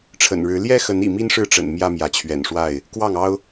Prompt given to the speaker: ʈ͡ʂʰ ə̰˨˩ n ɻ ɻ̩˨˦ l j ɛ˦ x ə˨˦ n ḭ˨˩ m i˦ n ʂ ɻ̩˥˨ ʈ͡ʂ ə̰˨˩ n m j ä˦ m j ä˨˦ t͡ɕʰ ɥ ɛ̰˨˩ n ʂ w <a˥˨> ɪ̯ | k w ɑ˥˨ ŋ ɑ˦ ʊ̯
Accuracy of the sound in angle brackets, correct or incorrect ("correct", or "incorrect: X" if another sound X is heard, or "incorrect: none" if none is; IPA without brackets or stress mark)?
correct